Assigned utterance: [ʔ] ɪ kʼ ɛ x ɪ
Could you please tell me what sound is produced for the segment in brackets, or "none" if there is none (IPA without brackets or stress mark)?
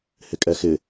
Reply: h